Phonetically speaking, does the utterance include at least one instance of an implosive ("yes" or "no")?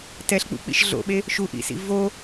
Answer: yes